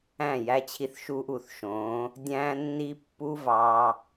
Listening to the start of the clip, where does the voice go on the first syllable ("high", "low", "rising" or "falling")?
falling